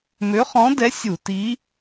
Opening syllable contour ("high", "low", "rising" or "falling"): rising